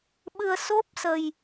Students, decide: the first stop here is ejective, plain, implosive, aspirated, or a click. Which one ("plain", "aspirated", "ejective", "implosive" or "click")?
implosive